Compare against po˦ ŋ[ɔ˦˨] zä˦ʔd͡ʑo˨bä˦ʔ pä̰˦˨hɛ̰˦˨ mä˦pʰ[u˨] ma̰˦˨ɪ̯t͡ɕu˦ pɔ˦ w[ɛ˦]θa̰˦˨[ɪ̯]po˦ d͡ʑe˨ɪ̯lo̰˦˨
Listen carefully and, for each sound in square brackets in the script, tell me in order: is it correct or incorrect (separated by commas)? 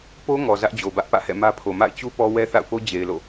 incorrect, incorrect, correct, incorrect